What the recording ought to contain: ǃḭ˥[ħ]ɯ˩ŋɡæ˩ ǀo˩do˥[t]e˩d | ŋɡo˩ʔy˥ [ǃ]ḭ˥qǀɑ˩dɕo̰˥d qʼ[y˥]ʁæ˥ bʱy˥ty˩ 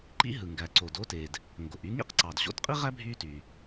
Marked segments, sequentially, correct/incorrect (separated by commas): incorrect, correct, incorrect, incorrect